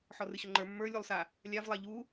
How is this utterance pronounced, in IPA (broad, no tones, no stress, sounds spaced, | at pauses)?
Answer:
ħ ɔ r ɨ ɕ ʊ ŋ͡ǃ ə˞ mː ə˞ lʲ u lˠ s a | lʲ a v lˠ a ʎ u